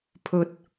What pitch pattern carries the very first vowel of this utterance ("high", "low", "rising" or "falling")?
low